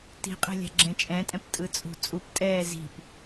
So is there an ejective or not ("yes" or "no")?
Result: yes